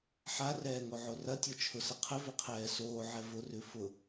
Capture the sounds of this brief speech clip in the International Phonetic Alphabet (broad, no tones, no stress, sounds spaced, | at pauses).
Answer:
ħ a r ɛː ŋ o ʕ o r ɐ tʲ o t͡ʃʰ ʊ s ɐ qʰ ɘ v ʉ qʰ ɛː s oː ʕ ɛ v ʊ r ʉ f ʊ